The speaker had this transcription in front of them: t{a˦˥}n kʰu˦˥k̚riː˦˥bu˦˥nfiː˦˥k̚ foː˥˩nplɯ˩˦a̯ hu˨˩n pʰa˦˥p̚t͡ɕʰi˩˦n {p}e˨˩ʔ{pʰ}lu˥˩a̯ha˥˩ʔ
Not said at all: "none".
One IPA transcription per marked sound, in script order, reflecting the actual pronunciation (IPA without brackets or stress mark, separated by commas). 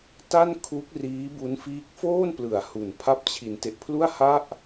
a˥˩, t, pʰ